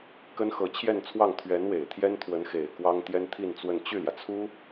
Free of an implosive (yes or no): yes